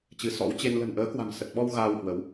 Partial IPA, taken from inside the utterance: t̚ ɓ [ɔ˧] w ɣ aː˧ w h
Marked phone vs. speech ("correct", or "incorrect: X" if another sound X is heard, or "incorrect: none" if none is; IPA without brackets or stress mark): correct